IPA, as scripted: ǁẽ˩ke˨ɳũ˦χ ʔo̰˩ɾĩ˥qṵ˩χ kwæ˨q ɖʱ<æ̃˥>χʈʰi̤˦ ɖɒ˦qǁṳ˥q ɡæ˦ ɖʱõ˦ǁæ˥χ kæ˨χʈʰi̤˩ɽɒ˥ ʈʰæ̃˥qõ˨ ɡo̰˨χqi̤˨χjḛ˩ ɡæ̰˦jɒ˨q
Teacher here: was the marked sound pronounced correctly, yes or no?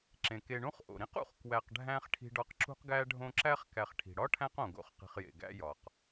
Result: yes